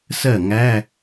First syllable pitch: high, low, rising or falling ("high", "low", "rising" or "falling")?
falling